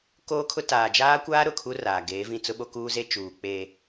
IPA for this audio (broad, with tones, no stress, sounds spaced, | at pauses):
k oː˦ kʰ ʊ˦ t aː˨ d͡ʒ aː˦ kʷ aː˦ ɾ ʊ˨ kʰ u˦ r aː˨ ɡ eː˨˦ v ĩ˦˨ t͡s ʊ˦ ɓ o˦ k uː˦ z e˦ t͡ʃ uː˨ k͡p eː˨